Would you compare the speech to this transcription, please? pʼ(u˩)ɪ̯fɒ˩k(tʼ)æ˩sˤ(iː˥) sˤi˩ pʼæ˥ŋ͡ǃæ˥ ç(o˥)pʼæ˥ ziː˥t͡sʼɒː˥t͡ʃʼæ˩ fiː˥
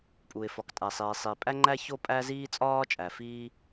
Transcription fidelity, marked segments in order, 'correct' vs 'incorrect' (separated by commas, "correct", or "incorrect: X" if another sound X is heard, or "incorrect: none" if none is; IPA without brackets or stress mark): correct, correct, incorrect: iː˩, correct